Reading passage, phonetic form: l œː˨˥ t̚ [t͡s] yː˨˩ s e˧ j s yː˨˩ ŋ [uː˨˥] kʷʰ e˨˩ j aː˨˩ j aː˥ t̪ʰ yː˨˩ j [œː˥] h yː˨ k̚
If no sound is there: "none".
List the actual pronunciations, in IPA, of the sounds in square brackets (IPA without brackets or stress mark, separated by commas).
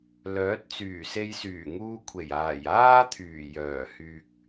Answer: t͡s, uː˧, œː˨˩